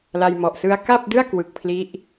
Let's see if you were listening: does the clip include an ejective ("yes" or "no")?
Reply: no